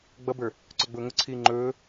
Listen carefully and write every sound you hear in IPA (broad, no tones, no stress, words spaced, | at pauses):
ɡ͡bʌbə˞ | ǀɵɡ͡bʊːŋʊǀʰiː ŋ͡ǃɵː